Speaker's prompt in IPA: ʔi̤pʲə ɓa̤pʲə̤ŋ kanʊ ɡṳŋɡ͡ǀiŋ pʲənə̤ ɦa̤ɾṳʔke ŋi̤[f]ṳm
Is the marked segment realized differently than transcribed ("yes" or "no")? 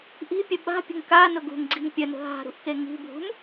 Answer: yes